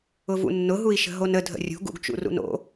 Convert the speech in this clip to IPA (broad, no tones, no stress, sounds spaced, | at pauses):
ʊ v ṵ nː ʊ ɦ u i̯ ʃ ə̤ ɦ o n ə dʱ ə̰ rʲ ṳ ɡ ṵ ɡ t͡ʃ ṵ r ṵ n o̰